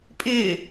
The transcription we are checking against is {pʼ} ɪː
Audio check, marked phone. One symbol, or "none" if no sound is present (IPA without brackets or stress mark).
pʼ